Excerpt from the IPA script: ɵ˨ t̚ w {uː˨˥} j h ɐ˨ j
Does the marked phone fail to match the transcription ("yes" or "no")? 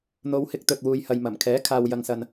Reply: yes